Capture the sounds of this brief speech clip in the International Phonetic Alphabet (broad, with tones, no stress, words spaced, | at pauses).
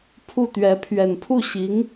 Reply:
pʰu˥˩t̪ɥɛ˧˥ pʰɥɛ˨˩npʰu˥˩ɕi˧˥ŋ